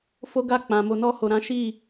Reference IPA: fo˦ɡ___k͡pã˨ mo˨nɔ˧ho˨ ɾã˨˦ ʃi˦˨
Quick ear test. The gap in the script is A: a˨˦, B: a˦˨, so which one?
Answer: B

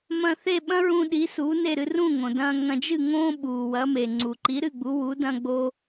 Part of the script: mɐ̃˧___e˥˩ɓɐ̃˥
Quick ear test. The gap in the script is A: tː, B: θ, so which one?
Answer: B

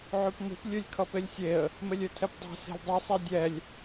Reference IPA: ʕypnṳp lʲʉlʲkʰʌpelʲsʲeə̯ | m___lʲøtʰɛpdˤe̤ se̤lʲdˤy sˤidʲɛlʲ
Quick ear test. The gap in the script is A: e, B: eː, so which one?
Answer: A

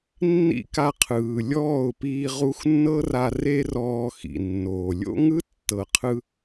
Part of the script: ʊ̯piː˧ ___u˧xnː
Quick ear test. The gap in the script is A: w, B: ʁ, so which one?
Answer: B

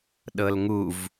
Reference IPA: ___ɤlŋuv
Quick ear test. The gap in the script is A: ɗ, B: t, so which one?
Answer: A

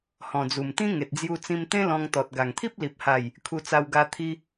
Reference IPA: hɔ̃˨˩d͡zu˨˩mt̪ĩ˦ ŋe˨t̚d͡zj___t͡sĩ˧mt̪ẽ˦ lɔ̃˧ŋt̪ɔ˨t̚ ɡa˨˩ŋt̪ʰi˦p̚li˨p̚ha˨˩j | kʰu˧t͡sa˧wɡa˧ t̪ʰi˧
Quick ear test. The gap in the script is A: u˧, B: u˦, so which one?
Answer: A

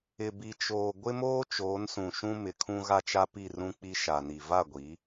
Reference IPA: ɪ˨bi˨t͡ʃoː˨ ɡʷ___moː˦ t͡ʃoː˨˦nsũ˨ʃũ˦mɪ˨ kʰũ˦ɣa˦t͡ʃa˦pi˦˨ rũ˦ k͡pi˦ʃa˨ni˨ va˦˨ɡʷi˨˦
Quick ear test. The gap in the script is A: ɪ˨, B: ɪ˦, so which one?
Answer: B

